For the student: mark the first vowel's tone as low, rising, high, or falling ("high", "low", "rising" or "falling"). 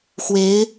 rising